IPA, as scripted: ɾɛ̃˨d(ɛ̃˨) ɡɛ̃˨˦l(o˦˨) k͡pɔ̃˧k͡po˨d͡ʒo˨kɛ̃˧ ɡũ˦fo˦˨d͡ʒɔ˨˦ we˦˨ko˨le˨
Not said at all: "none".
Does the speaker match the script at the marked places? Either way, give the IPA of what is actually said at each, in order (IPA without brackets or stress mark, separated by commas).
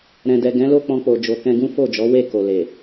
ɛ˨, o˦˨